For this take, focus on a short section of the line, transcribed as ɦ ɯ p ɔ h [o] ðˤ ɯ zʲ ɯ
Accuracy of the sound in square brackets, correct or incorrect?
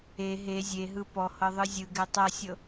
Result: incorrect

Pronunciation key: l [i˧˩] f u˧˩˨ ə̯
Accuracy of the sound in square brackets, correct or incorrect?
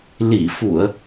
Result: correct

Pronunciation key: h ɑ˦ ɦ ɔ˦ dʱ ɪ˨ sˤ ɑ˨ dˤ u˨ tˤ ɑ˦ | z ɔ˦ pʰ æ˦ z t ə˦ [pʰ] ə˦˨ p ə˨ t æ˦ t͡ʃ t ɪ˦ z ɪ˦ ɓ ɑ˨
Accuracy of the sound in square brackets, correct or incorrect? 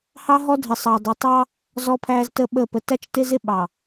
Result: incorrect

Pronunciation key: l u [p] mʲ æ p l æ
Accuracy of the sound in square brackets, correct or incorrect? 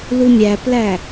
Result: incorrect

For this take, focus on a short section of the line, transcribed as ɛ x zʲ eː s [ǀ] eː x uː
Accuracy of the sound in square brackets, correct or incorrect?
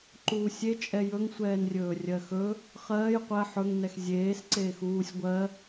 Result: correct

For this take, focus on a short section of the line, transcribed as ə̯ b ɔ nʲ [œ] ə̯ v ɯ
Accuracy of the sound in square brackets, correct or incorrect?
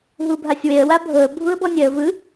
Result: incorrect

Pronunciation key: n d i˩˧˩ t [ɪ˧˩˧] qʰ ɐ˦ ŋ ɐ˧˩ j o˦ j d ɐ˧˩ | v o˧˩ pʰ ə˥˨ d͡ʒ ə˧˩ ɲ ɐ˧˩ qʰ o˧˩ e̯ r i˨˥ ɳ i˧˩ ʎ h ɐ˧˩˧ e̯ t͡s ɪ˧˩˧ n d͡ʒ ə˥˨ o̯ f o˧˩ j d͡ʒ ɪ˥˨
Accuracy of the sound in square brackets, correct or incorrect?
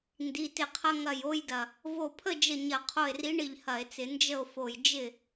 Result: incorrect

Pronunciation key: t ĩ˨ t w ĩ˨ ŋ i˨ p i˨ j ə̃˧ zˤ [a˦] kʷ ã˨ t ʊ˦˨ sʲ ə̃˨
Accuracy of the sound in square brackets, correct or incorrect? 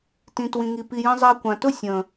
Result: incorrect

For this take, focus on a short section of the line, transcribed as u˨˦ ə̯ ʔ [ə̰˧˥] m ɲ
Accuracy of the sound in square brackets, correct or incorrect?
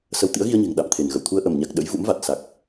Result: incorrect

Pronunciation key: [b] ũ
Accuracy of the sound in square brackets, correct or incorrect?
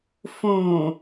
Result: incorrect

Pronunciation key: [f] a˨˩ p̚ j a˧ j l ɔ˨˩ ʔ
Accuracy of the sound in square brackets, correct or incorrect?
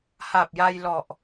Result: incorrect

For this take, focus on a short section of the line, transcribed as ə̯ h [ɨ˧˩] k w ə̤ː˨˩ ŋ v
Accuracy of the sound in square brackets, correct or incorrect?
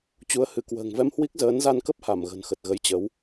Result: correct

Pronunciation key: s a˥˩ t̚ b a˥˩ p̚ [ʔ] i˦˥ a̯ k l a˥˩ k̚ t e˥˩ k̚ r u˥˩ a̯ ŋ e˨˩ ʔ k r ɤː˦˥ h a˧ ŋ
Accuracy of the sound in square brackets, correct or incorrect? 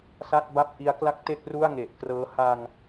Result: correct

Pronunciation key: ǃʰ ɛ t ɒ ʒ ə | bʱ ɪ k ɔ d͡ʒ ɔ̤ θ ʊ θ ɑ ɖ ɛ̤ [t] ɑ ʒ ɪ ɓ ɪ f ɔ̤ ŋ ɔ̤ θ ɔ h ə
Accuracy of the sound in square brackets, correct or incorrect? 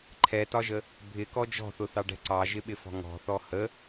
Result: incorrect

